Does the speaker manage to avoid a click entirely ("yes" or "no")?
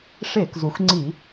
no